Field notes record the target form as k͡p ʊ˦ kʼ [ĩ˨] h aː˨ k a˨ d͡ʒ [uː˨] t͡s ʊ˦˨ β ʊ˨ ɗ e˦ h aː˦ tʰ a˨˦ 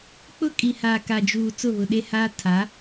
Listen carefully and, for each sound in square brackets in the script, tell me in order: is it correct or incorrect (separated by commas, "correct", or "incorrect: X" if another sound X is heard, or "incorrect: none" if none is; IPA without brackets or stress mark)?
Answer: incorrect: i˨, correct